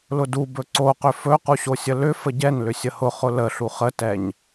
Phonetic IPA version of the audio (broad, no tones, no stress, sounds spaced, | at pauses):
l ʊ d u b ɵ ǀ o q ʏ f ɵ q u ɕ o sʲ ə l ʏ f ə ɟ ɛ n l ʏ sʲ ə h ʊ χ ʊ l ə ɬ u χ ə t ɛ ɲ